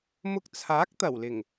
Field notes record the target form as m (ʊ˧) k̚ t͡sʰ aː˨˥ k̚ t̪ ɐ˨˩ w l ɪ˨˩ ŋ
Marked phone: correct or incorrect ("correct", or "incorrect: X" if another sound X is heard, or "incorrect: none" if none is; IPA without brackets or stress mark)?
correct